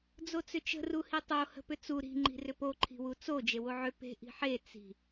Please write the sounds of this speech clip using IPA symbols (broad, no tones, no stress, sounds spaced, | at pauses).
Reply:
d͡z o t͡s ʏ t͡ʃ ə̤ r u h i tˤ o h ə̤ p ʏ t͡s u ɾ i̤ ŋ͡ǃ i̤ r ʏ p o ǃʰ i̤ w u t͡s o d͡ʒ e w o ʕ ʏ p e̤ ʔ i̤ ħ e t͡s i̤